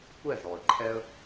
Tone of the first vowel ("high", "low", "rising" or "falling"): falling